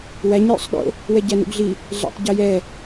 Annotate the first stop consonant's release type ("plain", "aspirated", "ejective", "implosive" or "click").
implosive